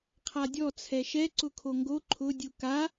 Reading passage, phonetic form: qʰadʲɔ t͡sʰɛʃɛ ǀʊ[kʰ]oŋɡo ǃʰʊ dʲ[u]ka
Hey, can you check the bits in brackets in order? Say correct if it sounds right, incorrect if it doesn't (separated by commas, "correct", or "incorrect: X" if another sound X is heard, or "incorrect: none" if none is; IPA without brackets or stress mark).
correct, correct